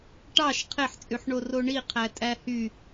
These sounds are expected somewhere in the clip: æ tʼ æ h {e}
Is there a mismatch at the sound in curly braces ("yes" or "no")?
yes